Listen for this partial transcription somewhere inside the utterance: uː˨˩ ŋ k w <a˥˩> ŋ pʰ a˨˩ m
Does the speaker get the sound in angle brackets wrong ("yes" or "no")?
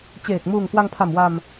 yes